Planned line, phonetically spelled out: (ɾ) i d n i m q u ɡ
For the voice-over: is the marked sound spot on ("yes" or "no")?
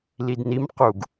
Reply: no